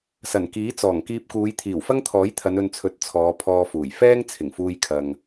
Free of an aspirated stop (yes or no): no